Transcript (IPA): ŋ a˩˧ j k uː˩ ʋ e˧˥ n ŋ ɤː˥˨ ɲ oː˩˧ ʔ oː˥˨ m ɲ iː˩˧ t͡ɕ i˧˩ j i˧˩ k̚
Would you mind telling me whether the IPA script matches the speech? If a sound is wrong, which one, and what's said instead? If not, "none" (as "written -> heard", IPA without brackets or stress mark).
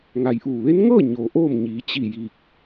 k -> ʔ